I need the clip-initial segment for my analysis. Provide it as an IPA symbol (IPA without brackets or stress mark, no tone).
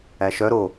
æ